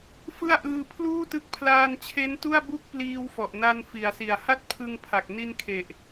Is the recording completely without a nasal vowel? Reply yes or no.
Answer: yes